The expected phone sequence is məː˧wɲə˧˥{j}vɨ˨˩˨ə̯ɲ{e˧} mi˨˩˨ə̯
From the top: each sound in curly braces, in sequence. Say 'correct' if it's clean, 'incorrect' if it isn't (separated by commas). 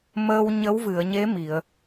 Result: incorrect, incorrect